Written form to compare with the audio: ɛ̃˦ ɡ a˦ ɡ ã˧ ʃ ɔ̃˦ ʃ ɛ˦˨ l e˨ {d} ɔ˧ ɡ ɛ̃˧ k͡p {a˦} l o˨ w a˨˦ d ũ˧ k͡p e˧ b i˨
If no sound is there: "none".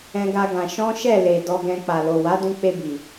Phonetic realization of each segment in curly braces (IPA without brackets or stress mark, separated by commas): d, a˨